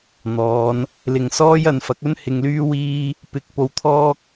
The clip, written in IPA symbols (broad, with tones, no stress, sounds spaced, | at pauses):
n̪ ɔː˨˧ n | l ɪ˨ ŋ s ɔː˥ j ɐ˨˧ n f ɐ˨˥ k̚ ɵ˥ n h ɪ˧ ŋ l yː˥ w iː˥ | p ɪ˨˥ k̚ p o˧ w t̪ʰ ɔː˥ k̚